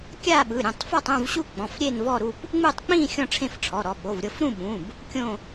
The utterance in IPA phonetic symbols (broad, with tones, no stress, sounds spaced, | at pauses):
kʲ a˥˧ ɓ ɯ˩˧˩ ɾʲ ũ˩˧˩ tˤ f ɔ˥˧ tˤ ũ˥˧ v ɕ u˥˧ k͡p ɔ̃˩˧˩ f ɾʲ e˥˧ n v ɔ˥˧ ɾ u˥˧ p | ŋ͡m u˥˧ tˤ k͡p ĩ˥˧ xʲ ɔ̃˥˧ ʈ͡ʂʰ ẽ˥˧ f ʈ͡ʂʰ ɔ˩˧˩ ɾ ɔ˩˧˩ ɓ o˩˧˩ v ɾʲ ɤ˥˧ f ɾ ũ˥˧ ɓ ũ˩˧˩ b | kʲ õ˥˧